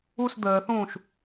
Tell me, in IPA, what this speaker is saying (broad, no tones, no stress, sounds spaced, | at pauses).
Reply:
u s d̪ əː θ ũː ʃ